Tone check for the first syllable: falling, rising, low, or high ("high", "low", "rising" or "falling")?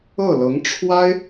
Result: falling